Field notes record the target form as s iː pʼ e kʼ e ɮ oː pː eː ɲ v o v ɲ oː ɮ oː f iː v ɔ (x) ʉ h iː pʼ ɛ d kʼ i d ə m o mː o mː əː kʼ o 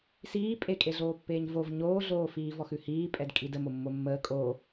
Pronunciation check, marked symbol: correct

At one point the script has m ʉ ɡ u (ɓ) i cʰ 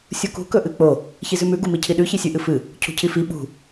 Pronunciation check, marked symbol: incorrect: m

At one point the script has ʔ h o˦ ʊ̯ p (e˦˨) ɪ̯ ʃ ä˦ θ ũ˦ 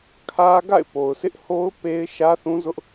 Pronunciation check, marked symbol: incorrect: e˦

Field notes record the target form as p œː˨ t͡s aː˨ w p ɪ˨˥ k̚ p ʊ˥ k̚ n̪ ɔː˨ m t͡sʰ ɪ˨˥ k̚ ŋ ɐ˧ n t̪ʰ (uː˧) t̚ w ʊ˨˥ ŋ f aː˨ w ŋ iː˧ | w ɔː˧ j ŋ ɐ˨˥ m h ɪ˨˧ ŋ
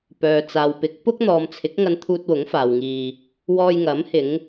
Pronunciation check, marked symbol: correct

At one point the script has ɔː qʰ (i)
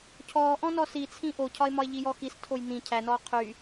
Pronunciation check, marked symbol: incorrect: y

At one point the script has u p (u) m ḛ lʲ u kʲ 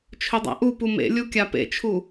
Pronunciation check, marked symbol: correct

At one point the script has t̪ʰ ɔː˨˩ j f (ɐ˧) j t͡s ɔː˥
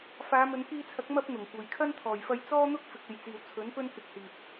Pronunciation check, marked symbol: correct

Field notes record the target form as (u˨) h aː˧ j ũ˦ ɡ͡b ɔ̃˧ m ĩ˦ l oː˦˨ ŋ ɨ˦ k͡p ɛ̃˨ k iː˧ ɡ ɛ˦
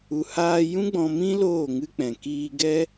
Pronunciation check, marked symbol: correct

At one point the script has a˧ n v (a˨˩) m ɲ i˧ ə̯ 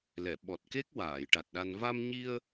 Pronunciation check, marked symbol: incorrect: a˧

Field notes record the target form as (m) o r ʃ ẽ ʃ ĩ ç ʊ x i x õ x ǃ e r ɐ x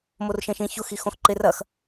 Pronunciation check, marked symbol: correct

